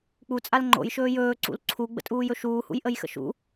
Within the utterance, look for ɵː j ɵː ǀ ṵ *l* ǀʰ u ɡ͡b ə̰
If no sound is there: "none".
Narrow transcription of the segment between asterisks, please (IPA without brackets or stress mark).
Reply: l